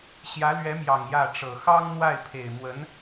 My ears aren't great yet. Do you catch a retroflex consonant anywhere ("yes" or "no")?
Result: yes